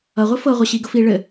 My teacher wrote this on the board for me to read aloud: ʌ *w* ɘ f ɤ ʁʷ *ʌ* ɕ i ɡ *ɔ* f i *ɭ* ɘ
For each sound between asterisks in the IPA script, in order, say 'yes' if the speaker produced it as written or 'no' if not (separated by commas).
no, yes, no, yes